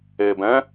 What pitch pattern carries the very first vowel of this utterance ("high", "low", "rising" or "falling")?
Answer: low